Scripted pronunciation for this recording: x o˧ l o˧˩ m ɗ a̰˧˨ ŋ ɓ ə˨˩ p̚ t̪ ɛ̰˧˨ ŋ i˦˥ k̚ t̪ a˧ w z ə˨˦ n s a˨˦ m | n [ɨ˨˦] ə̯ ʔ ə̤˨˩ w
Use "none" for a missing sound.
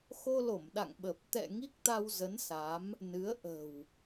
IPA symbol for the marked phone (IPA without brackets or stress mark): ɨ˨˦